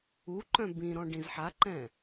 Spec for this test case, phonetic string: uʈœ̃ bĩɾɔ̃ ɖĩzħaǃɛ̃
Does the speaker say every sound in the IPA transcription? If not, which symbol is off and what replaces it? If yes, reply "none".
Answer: ʈ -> ǃ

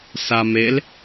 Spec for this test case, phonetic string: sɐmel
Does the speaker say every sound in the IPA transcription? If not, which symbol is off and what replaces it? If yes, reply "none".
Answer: ɐ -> a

